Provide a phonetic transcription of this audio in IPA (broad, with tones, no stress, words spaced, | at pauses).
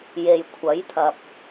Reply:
je˨jkʷʰɐ˨˥jt̪ʰɐ˨p̚